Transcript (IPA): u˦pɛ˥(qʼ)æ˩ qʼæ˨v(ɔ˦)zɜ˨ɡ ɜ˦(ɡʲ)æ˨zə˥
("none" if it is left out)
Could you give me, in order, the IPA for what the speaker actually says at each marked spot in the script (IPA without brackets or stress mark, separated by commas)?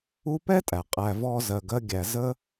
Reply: tʼ, ɔ˦, ɡʲ